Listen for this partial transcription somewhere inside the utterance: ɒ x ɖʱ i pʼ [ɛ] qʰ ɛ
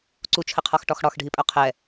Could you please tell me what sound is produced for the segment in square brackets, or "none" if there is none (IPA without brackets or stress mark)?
œ